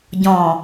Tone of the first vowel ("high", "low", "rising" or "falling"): low